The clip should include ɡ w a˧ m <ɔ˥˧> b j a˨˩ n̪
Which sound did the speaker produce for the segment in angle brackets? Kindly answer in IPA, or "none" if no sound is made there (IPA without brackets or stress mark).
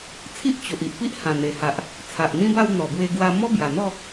ɔ˦